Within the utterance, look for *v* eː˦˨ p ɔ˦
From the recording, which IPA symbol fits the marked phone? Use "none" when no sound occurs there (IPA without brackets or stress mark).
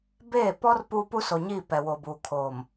b